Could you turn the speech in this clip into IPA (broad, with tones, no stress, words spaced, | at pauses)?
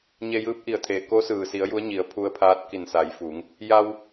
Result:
ɲe˧jɯː˧˥p̚ʔi˧˩ə̯t̪ʰeː˩ ko˧˥sɯː˩si˩˧ə̯ ju˧˥ə̯ɲi˩˧ə̯pʰu˧ə̯pʰaː˧˥t̚ ki˧˩nsa˩˧jfu˩˧ŋ | ja˧w